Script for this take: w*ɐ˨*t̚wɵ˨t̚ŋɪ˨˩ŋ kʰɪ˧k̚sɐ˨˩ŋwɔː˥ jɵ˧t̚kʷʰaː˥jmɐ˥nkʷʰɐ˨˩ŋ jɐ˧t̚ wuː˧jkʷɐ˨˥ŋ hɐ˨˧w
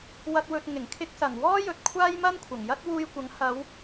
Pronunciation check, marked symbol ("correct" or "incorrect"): correct